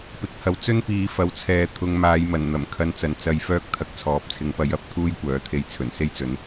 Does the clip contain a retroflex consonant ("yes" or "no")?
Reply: no